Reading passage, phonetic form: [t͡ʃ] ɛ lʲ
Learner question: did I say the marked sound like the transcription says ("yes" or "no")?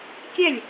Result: no